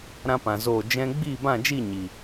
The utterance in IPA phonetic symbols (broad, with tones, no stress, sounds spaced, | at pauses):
ɾ ã˦ p ã˨ z oː˦˨ d͡ʒ ɛ̃˧ ɡ͡b iː˦˨ b ã˦˨ d͡ʒ i˦˨ ɲ i˨